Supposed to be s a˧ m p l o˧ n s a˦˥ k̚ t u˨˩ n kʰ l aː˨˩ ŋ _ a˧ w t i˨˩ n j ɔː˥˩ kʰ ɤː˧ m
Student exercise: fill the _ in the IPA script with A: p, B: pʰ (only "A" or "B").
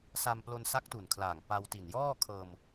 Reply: A